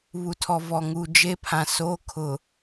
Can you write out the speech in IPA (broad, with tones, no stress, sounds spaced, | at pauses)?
β u˨ tʰ ɔ˨ v ɔ˨ ŋ u˨ d͡ʒ e˦ pʰ ã˨ s oː˦ kʰ ʊ˨